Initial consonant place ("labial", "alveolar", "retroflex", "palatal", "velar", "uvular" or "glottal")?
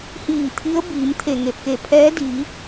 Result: glottal